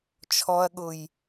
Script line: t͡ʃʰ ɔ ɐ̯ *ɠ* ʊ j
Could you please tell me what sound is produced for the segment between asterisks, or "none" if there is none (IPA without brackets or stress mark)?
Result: ɠ